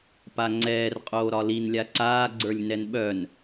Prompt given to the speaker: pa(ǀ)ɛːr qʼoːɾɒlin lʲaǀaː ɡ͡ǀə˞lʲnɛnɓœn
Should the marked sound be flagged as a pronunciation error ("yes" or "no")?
yes